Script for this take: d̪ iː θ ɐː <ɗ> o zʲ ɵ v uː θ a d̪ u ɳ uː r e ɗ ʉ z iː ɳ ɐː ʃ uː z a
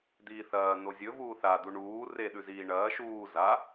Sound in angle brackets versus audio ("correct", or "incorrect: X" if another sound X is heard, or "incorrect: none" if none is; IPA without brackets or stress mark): incorrect: n̪